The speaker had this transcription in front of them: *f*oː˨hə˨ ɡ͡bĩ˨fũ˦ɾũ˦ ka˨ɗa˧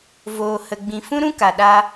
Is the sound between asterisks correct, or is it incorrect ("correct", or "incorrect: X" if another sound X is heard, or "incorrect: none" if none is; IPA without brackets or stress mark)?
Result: incorrect: v